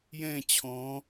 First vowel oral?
no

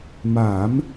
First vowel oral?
yes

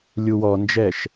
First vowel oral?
yes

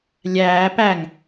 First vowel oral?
yes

